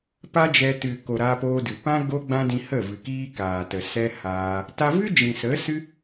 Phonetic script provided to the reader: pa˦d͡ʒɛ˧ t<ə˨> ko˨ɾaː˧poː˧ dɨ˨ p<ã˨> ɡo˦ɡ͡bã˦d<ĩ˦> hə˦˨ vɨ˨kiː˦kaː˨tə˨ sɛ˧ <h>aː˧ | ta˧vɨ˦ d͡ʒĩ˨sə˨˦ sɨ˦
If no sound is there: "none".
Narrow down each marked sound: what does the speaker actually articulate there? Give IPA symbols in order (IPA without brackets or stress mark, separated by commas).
ɨ˨, ã˦, ĩ˧, h